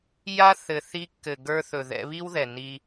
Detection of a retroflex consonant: absent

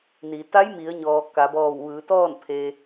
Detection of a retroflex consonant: absent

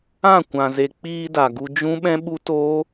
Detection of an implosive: present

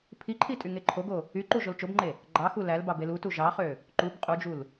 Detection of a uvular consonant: present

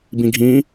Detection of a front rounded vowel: absent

